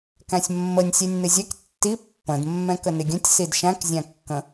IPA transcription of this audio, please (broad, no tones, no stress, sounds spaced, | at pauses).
k æ̃ sʲ mː ə nʲ sʲ ɛ nʲ n̪ ɪ zʲ ɛ k tː i pː ə̃ d mː ɛ̃ k ə n ɪ ɡʲ ə̃ tʲ s i d ʃ æ̃ k zʲ æ̃ kː ə̃